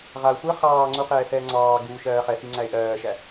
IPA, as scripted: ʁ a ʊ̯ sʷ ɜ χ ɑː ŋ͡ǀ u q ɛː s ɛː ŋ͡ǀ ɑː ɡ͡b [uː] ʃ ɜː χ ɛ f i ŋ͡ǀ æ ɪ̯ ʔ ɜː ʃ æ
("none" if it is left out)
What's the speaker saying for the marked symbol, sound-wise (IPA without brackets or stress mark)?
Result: uː